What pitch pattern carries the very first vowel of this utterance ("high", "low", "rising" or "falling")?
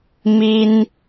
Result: high